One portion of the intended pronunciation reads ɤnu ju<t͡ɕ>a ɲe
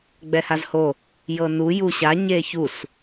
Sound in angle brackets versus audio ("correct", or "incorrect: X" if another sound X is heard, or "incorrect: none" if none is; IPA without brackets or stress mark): incorrect: ɕ